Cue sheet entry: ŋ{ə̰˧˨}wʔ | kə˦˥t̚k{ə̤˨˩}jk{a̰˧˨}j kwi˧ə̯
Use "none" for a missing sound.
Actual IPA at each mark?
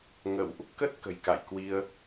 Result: ə̰˧˨, ə̤˨˩, a̰˧˨

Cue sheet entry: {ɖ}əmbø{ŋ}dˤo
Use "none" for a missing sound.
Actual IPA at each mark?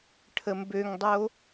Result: ʈʰ, ŋ

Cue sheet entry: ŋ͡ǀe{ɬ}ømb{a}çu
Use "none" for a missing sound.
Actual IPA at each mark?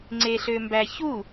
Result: ɬ, æ

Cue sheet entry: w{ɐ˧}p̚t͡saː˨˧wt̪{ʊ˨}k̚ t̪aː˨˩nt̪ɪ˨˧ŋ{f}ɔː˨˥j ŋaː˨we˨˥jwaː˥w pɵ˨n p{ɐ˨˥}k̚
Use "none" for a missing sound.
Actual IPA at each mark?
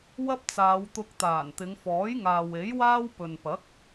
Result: ɐ˥, ʊ˧, f, ɐ˨˥

